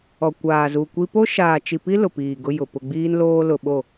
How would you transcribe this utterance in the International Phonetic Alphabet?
ɔ˨kʷaː˨zu˨kʷi˦ po˦ʃaː˨t͡ʃi˨pi˦ lʊ˨piː˨ɡʊ˦jʊ˨ pʊ˨ɡ͡biː˦nloː˦ lʊ˨ɓo˦˨

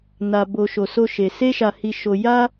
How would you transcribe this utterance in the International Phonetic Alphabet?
na˧ bo˧ ʃo˧so˦ʃe˧ se˦ʃa˧hi˧ʃo˧ ja˦

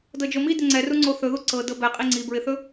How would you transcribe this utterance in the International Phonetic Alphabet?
dɤd͡ʒomi dɪŋ͡ǀɛruŋ͡ǀo θɵðu ǀɤ dɤbɛqʼi ŋ͡ǀibɹɪθɵ

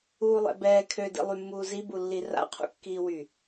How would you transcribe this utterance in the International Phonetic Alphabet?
uːlˠɛ̰bɛː kʰø dḭlˠymːuː zibulːi ra̰qʰṵkːiːwy

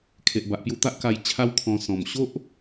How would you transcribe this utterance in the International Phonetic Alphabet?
kʰe˨ʔba˨ʔpju˧t̪a˦ʔ ka˧jt͡ɕʰa˦wkʰɔ̃˧ sɔ̃˨˩mɕo˦ʔ

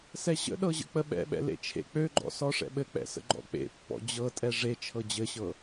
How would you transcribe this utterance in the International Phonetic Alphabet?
sɛɕə̰ɗɤ ʑə̰k͡pəɓɛ̰ɓɛ̰ lḛt͡ʃʰḛk͡pøɡ͡ǃɔ̰ sɔʂɛ̰ɓɘk͡pɛ̰ sə̰ɡ͡ǃɔ̰k͡pḛpːɔ̰ d͡ʑɤtʼɛ ʐe t͡ʃʰɤd͡ʑɘɕɤ

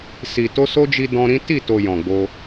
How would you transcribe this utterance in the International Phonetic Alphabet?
si˨ to˧so˦d͡ʒi˧ dɔ̃˧ɾĩ˦ ti˦˨to˨ jɔ̃˨ɡ͡bo˧

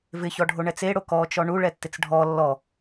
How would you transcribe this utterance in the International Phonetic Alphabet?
vɪçɔɖʱoɳɛt͡s eɽo kɔt͡ʃɔ ɳuɭɛtːɪt͡s ɖʱɔ lːɔ

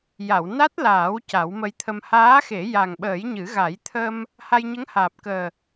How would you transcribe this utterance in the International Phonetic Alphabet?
ja˨˩˨wna˦˥t̚laː˨˩˦w ca˨˩˦wmə˧jt̪ʰə˧m haː˧˥xe˨˩˦ ja˨˩ŋɓəː˨˩˦jɲɨ˨˩˦ɣa˨˩˦j t̪ʰə˧m | ha˧jɲə˧˥ŋhaː˨˩p̚kəː˨˩

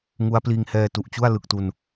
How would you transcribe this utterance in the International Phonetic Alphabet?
ŋu˦˥a̯pliː˧ŋhɛː˧ tu˨˩ʔt͡ɕu˥˩a̯ lɯ˨˩k̚tu˧n

